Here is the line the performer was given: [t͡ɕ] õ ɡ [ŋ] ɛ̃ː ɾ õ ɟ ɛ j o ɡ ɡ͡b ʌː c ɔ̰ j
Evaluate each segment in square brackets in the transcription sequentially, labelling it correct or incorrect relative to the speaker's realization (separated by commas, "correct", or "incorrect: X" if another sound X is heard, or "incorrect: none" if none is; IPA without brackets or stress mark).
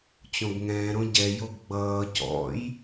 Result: correct, correct